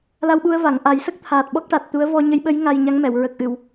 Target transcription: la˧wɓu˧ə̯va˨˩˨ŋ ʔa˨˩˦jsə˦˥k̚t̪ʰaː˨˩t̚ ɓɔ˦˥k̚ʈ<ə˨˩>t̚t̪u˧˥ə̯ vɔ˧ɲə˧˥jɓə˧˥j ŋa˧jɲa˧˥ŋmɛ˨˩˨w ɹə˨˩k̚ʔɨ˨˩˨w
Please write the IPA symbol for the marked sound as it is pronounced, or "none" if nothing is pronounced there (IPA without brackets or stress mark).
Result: a˨˩